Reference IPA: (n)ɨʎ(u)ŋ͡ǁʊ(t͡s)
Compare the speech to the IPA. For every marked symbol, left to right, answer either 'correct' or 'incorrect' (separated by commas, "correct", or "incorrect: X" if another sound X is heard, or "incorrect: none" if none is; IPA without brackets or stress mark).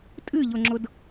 incorrect: tʼ, incorrect: ʊ, incorrect: d